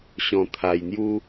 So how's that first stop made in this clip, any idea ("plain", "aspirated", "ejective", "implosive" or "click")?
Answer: aspirated